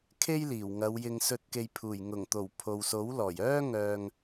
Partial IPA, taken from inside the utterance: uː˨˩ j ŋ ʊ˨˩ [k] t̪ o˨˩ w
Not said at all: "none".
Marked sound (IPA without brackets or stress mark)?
ŋ